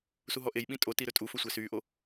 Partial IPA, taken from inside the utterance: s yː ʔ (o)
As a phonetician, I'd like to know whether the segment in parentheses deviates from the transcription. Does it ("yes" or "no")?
no